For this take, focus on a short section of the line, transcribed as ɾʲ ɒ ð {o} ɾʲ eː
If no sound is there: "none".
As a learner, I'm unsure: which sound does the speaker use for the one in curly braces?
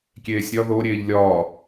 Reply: o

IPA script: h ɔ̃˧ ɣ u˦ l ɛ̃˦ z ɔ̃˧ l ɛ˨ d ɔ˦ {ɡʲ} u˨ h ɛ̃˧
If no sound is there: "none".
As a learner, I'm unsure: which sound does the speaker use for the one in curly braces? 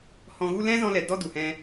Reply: d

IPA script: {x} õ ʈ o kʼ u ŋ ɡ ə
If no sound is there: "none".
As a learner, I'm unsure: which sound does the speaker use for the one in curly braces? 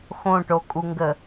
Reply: x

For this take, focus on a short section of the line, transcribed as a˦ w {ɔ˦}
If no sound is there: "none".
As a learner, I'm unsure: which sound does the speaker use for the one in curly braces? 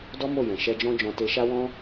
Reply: ɔ̃˦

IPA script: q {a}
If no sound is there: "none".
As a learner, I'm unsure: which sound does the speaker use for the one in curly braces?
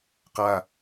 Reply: a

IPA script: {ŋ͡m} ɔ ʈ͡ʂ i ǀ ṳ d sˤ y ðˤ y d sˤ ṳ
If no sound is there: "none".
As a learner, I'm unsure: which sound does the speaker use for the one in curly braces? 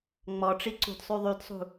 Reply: ŋ͡m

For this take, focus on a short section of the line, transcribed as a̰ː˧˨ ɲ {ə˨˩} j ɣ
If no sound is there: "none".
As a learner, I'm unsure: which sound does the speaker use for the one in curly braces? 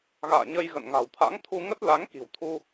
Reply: ə˧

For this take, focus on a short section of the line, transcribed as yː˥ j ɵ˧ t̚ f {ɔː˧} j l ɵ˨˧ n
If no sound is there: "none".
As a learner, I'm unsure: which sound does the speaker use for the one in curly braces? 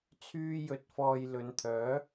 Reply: ɔː˧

